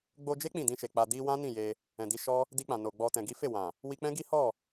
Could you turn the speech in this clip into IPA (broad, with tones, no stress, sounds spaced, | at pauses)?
ɡ͡b o˧ d͡ʒ e˦ k͡p ĩ˦˨ d ĩ˧ ʃ e˨ k͡p a˨ d i˧ w ã˦ n ĩ˦˨ j e˧ | ɛ̃˨ d i˧ ʃ ɔ˦ | d i˧ k͡p ã˨ n o˨ ɡ͡b ɔ˨ t ɛ̃˨ ɡ i˨˦ f e˦˨ w ã˨ | w i˧ k͡p ɛ̃˦ ɡ i˦ h ɔ˦˨